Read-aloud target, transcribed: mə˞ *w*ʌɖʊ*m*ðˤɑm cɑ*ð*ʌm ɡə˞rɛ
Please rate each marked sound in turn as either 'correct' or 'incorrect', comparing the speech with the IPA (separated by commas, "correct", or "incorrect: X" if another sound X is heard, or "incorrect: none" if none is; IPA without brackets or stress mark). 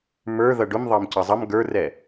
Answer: incorrect: ð, correct, incorrect: zˤ